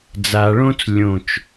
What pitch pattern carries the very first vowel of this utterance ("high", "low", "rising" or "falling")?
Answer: low